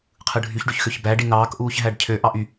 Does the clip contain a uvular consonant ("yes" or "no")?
yes